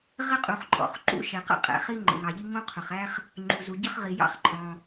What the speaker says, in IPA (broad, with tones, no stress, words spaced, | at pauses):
ʁɪ˥qʼu˩χǃʼɔ̰˩χǃṵ˥ ʃɛ˩qə̰˥ qʼɛ̰˩χi˥ ŋ͡ǃə̰˩ŋɑ˩ʎi˥ ŋũ˥qʰʊ˩χæ˥χ | ŋ͡ǃu˩zu˩ ɟə˥χʁi˩ jɑ̰˥χǃʼɔ̃˩